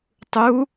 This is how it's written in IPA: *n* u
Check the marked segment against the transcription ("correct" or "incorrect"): incorrect